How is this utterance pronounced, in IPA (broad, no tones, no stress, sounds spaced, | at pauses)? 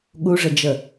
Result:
ɠ u ʐ ə d͡ʒ ə